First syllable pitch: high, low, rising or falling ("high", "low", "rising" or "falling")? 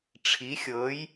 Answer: rising